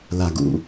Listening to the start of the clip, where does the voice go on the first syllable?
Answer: low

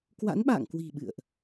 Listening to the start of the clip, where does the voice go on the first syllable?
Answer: rising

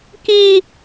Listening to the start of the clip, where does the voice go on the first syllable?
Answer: high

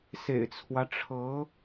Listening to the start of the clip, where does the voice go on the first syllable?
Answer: low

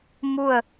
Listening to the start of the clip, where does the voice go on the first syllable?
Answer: falling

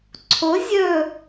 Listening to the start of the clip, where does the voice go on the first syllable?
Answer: rising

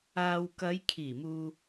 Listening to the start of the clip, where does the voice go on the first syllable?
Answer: low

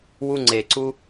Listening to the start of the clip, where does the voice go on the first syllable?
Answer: high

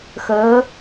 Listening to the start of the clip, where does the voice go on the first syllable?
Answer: rising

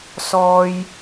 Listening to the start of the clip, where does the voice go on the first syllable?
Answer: high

